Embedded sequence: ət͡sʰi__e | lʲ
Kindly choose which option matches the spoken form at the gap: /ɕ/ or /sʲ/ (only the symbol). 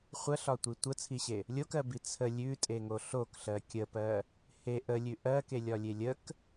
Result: ɕ